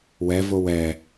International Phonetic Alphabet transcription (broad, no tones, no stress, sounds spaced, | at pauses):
w ɛ v o w ɛ